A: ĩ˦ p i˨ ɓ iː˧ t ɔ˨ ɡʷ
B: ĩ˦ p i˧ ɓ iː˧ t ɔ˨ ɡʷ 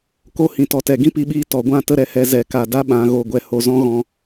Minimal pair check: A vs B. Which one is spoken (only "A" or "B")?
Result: B